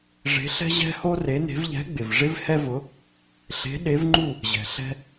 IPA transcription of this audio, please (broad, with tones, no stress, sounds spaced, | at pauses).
ʐ e̤˧˥ ɬ ɛ̤˥ ʑ ɛ̤˥ h o˥ r e˧˥ n e̤˧˥ v ʎ ɛ̤˧˥ ɡ͡b ɪ˨ v ʐ ɪ˥ v h ɛ˥ v ʊ˧˥ | ɬ e̤˧˥ ɗ e˧˥ v ŋ͡ǃ u˥˧ | ʑ ɛ̤˨ ɬ ɛ̤˥